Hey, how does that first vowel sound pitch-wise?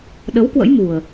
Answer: rising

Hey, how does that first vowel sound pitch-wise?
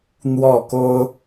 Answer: falling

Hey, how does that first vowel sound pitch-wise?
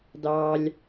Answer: high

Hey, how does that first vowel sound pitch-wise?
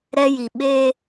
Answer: high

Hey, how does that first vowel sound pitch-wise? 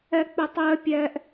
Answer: high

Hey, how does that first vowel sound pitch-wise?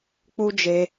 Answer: high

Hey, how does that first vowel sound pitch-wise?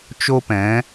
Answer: high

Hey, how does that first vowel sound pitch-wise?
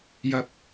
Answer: high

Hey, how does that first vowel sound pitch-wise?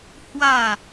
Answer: falling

